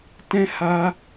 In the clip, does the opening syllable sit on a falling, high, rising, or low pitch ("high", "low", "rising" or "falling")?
high